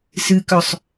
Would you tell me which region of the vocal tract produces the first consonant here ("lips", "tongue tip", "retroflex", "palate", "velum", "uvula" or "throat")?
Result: tongue tip